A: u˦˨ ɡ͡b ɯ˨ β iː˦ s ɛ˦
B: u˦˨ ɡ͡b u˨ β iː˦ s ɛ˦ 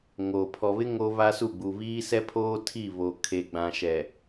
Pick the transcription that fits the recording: B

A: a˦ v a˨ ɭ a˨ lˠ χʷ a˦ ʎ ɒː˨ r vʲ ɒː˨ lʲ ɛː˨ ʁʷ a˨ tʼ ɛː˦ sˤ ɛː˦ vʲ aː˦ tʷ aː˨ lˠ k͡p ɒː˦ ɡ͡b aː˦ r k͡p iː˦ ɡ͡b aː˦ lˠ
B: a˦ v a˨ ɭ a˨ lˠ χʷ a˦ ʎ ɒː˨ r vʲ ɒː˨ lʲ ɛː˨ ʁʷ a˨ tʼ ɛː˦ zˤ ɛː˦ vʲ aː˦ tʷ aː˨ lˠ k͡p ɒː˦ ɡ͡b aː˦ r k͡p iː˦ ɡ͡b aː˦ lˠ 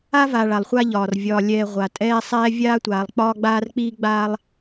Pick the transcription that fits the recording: A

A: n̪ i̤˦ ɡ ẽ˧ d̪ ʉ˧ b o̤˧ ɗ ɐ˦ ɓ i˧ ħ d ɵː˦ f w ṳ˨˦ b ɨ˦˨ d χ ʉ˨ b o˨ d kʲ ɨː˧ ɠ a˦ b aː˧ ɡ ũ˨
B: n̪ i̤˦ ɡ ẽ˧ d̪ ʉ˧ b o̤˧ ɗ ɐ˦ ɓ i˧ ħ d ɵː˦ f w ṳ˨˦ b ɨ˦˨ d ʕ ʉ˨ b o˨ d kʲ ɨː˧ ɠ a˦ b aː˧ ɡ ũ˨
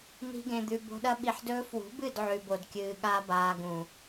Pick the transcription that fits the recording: B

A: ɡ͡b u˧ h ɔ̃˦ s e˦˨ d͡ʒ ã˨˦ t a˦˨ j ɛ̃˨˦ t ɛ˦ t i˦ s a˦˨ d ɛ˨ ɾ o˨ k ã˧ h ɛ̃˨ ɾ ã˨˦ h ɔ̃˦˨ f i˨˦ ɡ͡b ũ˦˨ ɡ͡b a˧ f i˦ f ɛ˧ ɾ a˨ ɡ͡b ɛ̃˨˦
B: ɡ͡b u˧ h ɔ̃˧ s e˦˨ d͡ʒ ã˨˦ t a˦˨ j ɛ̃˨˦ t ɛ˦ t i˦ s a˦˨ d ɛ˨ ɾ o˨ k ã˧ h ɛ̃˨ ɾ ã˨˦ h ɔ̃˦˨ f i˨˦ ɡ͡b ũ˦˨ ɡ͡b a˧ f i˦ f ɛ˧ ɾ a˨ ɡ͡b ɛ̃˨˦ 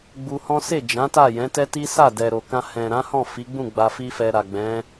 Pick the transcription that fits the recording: A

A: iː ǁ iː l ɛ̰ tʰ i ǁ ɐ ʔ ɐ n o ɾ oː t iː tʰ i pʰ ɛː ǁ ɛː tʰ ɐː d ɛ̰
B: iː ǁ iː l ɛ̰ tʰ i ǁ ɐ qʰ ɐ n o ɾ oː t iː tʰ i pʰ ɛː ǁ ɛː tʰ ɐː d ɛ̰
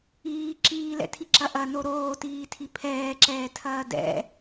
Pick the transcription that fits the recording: A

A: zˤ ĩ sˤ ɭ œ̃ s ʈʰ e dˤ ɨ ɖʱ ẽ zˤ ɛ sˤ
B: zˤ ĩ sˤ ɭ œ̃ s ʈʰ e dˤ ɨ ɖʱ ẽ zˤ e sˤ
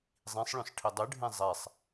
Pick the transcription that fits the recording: A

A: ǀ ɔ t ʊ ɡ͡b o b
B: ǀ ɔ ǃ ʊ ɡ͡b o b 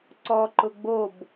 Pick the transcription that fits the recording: B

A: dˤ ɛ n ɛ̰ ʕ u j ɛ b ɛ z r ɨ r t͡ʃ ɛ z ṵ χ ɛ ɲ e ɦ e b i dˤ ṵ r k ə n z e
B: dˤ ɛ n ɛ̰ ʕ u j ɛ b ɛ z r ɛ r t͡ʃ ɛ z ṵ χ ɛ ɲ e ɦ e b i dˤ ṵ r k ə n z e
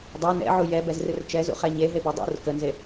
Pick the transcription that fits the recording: A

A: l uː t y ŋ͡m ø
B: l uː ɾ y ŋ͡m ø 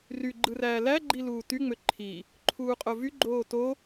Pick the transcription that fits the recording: A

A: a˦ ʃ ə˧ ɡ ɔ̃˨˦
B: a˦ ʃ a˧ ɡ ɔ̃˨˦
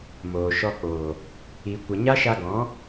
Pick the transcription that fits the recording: B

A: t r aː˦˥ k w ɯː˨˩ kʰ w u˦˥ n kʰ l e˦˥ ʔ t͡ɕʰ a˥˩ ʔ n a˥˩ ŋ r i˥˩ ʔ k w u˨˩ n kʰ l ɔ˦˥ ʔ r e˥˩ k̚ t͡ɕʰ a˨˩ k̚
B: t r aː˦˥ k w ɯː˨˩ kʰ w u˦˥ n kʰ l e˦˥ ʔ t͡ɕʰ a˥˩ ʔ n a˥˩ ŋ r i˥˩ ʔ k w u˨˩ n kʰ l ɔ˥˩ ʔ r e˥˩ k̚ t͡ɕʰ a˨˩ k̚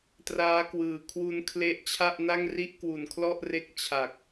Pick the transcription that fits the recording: B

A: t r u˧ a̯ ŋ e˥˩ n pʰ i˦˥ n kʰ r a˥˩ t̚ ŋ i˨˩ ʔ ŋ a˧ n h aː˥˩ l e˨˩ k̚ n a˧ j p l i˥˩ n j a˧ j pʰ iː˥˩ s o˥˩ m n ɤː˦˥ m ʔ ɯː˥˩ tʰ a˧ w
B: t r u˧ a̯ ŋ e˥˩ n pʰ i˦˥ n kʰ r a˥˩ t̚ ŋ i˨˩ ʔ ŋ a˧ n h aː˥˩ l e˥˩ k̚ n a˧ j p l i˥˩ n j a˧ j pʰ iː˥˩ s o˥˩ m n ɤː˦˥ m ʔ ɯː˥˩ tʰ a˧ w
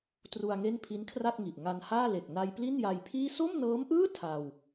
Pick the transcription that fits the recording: A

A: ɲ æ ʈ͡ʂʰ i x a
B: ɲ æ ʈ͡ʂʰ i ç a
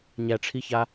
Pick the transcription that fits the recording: B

